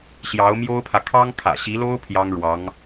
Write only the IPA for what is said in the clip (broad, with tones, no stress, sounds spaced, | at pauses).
ɕ j ɑ˧˥ ʊ̯ m j o˥ ʊ̯ pʰ ä˨ kʰ ɑ˥ ŋ kʰ ä̰˨˩ ɕ i˧˥ l o˥ ʊ̯ pʰ j ɑ˥ ŋ ɻ w ɑ˧˥ ŋ